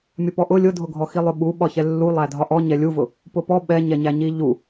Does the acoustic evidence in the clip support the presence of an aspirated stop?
no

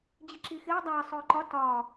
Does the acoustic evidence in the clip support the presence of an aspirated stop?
no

